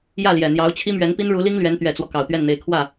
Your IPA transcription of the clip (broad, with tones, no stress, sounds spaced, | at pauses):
j ä˥˩ l j ɛ˨˩ n̪ j ɑ˧˥ ʊ̯ t͡ɕʰ i˥ m ɥ ɛ˧˥ n p i˥ n ɻ u˧˥ l i˥ ŋ l ɥ ɛ˧˥ n t̪ ɥ ɛ˨˩ t͡s w ɔ˦ k ɑ˨˩ ʊ̯ t̪ ɥ ɛ˥˩ n n̪ e˧˥ ɪ̯ kʰ w ä˥˩